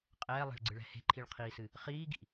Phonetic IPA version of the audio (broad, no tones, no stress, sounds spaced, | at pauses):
qʼ ɛː lˠ ɛ̤ ɭ ɡ͡ǀ ɨ ɭ ɛ̤ h e̤ ǃʰ i ɭ qʰ iː s ɨ | χ iː ɡ ḭ